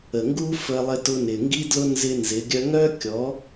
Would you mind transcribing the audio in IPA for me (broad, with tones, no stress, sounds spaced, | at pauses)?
ə˨ ŋ ɡ u˦ f ə˦ lˠ ɪ˦ t ʊ˦ n ɪ˨ ŋ ɡ i˦ d l ʊ˦ n z ɪ˦ n z ɪ˨˦ ɡʲ œ˦ ŋ œ˦ kʲ ɔ˨˦